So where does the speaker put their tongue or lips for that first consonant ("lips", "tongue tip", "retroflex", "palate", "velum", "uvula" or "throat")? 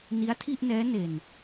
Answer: tongue tip